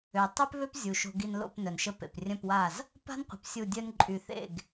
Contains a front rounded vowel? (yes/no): yes